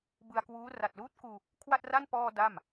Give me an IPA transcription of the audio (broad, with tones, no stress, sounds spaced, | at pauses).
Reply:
b ɯ˧ a̯ k w uː˦˥ r a˨˩ t̚ l uː˦˥ t̚ k uː˧ | kʰ w a˥˩ t̚ r a˥˩ n p ɔː˧ d a˥˩ m